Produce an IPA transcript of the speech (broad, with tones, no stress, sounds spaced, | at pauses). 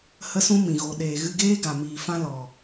h ə˦ s ũ˦ m ĩ˨ ɣ o˨ ɗ eː˨ ɣ ɨ˧ ɡ eː˦ ɡ a˨ m iː˨ f ã˦ l ɔ˨